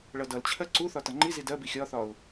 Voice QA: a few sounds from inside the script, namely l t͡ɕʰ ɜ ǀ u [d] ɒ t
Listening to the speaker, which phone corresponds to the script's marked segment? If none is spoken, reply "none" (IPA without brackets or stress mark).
θ